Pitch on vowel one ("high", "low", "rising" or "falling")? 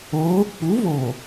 rising